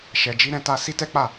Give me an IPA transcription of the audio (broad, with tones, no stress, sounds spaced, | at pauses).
ʃ ɛ˨ d͡ʒ i˧ ɾ ɛ̃˧ t a˧ s i˦ t ɛ˦ k͡p a˦˨